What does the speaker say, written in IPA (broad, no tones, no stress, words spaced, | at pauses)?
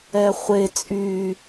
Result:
ɛχʷe t͡sʼy